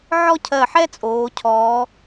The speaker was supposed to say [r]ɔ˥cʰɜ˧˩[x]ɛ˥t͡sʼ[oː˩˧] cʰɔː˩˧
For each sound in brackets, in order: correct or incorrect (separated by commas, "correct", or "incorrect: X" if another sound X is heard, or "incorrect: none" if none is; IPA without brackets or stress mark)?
incorrect: ʕ, incorrect: ħ, correct